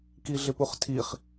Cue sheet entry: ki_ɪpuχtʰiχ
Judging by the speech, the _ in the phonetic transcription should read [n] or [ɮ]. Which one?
ɮ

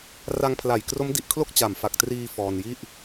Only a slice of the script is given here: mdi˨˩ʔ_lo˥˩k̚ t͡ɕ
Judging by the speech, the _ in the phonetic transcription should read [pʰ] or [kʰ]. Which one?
kʰ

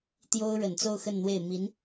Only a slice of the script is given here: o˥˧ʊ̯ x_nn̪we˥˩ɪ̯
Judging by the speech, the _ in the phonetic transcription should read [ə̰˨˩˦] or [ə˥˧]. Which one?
ə˥˧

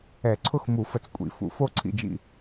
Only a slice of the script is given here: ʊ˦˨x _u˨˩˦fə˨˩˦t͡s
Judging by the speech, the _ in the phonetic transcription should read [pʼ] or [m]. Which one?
m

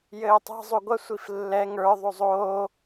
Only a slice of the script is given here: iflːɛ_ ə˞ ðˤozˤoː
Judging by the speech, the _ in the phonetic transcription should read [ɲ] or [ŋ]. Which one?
ŋ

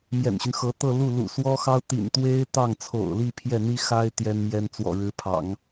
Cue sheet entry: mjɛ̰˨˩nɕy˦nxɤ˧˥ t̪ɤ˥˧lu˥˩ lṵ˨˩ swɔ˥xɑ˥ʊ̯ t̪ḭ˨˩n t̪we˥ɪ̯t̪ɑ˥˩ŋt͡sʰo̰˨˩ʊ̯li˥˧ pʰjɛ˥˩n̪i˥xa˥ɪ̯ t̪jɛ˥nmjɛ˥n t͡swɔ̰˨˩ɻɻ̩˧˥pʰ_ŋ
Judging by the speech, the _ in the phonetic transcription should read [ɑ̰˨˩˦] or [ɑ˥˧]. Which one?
ɑ̰˨˩˦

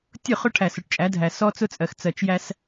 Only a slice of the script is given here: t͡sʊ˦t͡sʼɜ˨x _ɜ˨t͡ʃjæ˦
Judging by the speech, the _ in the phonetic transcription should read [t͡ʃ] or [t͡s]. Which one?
t͡s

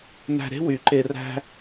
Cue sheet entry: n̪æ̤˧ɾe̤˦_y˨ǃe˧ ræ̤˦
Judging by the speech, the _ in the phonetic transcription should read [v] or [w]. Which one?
w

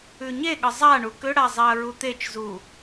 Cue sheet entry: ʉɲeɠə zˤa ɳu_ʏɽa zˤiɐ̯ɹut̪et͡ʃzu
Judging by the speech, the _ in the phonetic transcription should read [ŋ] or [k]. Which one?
k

